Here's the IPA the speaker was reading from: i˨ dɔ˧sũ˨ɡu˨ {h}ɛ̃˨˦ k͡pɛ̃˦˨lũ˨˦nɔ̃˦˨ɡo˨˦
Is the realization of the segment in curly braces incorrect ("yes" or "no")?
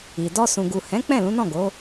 no